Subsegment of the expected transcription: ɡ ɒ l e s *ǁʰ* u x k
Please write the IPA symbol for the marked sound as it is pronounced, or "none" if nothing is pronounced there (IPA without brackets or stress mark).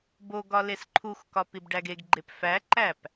ǃʰ